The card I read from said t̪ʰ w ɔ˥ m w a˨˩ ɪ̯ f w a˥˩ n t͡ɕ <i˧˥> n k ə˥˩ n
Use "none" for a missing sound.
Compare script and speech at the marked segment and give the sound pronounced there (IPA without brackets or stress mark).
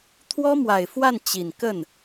i˨˩